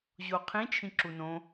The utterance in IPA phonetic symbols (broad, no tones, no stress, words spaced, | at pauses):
ʑoqʰĩ t͡ʃʰĩǁunõ